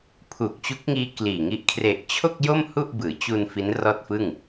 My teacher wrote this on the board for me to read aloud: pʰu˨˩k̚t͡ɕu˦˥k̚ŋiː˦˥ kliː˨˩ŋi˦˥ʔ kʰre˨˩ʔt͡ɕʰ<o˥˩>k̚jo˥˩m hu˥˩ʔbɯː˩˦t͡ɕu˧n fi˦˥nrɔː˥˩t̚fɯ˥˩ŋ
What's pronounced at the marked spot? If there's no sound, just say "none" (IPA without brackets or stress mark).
o˥˩